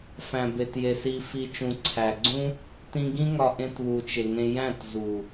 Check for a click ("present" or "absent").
present